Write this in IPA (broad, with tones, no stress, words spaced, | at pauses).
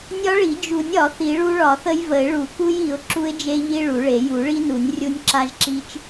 nʲɒ˦˥ɭi˨˩˦ d͡ʒu˨˩˦nʲɒ˨˩˦ θi˨˩˦ɭu˦˥ɭɒ˨˩˦θə˦˥j və˨˩˦ɪ̯ɭu˨˩˦ku˦˥j i˨˩˦ʊ̯ ǁu˦˥ɪ̯d͡ʒe˦˥ ʎi˦˥ɭu˨˩˦ɭe˨˩˦ ju˨˩˦ɭi˦˥nu˨˩˦nʲ rʲu˦˥nʲǁa˦˥ʒǁi˦˥t͡ʃ